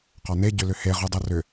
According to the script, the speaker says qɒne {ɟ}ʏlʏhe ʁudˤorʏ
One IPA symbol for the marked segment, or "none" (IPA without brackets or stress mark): ɟ